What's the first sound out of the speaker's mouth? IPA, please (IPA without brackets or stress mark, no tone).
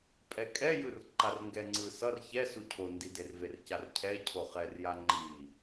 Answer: pʼ